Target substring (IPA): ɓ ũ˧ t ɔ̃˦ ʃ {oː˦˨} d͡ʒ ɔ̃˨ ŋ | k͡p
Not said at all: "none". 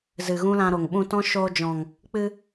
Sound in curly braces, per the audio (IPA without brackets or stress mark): oː˧